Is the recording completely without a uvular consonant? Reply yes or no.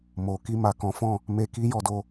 yes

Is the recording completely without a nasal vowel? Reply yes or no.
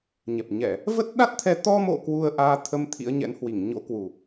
yes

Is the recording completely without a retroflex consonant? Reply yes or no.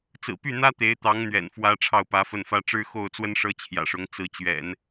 no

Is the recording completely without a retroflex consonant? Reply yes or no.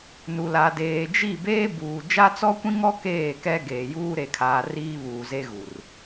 yes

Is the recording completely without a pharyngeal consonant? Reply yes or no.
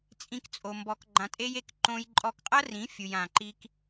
yes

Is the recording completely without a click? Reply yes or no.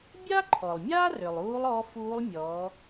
no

